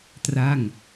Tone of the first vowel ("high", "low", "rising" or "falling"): falling